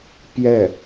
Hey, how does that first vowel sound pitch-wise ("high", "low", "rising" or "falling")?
falling